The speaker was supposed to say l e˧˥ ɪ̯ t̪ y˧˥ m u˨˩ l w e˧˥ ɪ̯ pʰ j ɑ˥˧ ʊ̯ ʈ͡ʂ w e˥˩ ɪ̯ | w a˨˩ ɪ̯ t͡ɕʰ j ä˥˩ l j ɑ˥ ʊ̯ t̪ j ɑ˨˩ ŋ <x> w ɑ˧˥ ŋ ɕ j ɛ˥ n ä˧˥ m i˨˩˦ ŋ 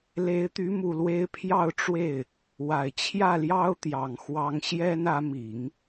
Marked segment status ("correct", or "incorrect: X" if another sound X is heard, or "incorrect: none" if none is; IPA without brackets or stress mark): correct